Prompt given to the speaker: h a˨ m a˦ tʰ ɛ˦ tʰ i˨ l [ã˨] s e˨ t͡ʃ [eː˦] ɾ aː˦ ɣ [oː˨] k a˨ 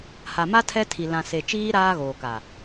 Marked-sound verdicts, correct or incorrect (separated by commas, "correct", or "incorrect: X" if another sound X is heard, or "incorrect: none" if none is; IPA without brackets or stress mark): correct, incorrect: iː˦, correct